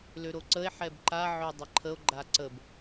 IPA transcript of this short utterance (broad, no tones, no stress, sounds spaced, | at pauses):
l ø ɾ o ǀ ə e̯ ħ ɛ b ǃ a ʕ ø dˤ ə ǃʰ ə o̯ ɡ͡ǃ a ǀ ə b